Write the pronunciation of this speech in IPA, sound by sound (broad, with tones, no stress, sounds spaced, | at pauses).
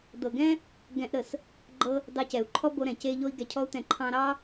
d̪ ɤ˨ ɡ ɛ̃˦ | ɡ ɛ̃˧ ʔ ɾ ə˨ s | ɡ͡ǃ ɤ˧ | d ɑ˧ c ɛ˨ u̯ ǃʰ ɔ˦ b o˧ ɾ ɛ̃˨ c e˧ ʎ o˧ i̯ ɡ ɛ˨ cʰ ɔ˧ u̯ t̪ ɛ̃˨ ǃʰ ɑ̃˧ ɾ ɑ˦